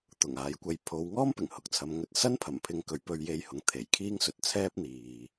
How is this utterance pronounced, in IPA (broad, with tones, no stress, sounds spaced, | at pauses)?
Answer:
t̪ ʊ˨˩ ŋ aː˨˧ j kʷ ɐ˧ j pʰ o˨˧ w ŋ ɔː˥ m p ɪ˨˩ ŋ h ʊ˨ k̚ t͡sʰ ɐ˨˧ m ŋ ɵ˧ t̚ s ɐ˥ n pʰ ɐ˨˩ m pʰ ɪ˧ ŋ k ɵ˨˧ ɥ p ɵ˧ ɥ j e˧ j h ʊ˨˥ ŋ t̪ʰ e˨˩ j kʰ iː˥ ŋ s ɵ˨ t̚ t͡sʰ ɛː˥ p̚ n̪ iː˨